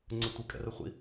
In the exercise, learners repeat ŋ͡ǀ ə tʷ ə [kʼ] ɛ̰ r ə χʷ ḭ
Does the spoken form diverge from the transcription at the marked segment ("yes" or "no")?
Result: no